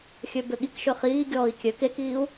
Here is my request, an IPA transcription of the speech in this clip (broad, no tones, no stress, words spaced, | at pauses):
xʲøbøɠikʃø χiːɡʲɔːi̯ kʲø kekiːu̯